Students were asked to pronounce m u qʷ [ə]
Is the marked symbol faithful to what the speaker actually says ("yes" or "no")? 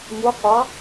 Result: no